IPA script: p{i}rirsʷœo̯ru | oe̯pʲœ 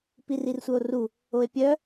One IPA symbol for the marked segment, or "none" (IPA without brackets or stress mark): i